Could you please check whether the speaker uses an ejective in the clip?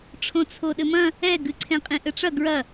yes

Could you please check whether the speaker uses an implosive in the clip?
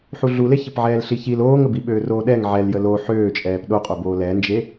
yes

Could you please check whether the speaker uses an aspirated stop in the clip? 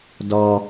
no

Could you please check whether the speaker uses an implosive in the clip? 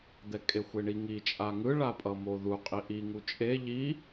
no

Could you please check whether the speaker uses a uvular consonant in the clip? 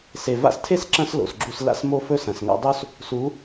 no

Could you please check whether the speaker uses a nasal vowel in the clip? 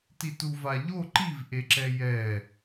no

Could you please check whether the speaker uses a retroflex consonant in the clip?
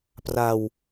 no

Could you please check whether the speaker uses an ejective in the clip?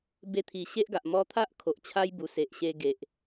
no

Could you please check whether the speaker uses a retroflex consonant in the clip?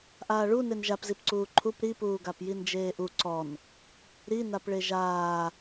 yes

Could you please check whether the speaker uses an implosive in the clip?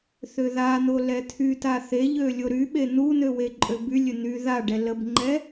yes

